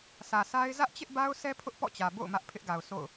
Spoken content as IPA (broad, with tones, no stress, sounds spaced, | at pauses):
sʰ ä˨ sʰ a˦ ɪ̯ z ä˦ ʔ t͡ɕ ɪ˦ ʔ b a˦ ʊ̯ s ɛ˦ pʰ ʊ˦ ʔ p ɔ̰˦˨ t͡ɕ ä˨ b o̰˦˨ ʊ̯ m ä˦ ʔ pʰ ɪ˦ ʔ ɡ a˨ ʊ̯ s o̰˦˨ ʊ̯